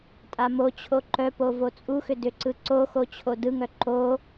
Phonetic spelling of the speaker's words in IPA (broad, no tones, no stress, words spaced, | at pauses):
tʼamot͡ɕʰo ǃœ povot͡sʼuxʏ dʏǀɯǀoxo t͡ɕʰodɯŋœ ǃo